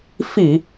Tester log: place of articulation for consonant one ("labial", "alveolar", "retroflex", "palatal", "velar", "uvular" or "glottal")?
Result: labial